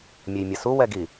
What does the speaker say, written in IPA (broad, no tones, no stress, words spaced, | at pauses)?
mʲejmʲʌsu wɛɡi